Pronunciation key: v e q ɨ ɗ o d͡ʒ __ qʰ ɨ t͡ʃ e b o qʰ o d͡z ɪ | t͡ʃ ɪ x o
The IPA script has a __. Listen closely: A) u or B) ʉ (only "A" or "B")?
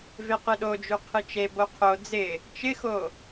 B